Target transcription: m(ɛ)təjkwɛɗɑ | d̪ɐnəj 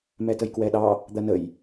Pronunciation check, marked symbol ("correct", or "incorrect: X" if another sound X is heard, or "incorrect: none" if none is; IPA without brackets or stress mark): correct